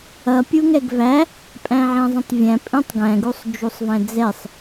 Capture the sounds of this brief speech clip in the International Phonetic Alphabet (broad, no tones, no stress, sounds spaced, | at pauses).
ʌ pʲ u ŋ ɛ ɡ v æ | pʼ æ̃ ʕ ɛ̃ zˤ ĩ tˤ vʲ æ̃ pʼ ĩ tˤ ɡ æ̃ ɡ u sˤ d͡ʒ u sˤ v æ̃ d͡z ɛ sˤ